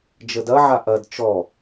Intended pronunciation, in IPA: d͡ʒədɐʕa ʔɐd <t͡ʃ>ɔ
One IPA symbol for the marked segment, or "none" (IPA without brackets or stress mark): t͡ʃ